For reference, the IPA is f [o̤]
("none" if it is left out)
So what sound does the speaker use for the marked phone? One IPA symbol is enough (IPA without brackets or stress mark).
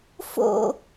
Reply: o̰